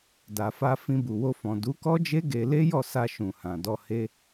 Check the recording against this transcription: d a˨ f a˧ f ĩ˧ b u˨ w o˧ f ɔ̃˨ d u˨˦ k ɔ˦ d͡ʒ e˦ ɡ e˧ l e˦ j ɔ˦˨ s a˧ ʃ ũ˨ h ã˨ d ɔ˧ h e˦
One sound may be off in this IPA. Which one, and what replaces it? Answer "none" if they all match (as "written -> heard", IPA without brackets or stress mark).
none